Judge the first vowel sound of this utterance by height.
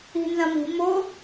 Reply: high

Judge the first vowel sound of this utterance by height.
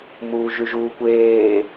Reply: high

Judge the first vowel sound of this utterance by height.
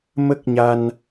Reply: mid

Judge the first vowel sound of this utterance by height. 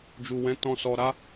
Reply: high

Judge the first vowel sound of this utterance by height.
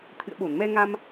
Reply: high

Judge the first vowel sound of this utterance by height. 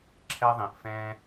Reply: mid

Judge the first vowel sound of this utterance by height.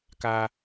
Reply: low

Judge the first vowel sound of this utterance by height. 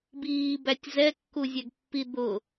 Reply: high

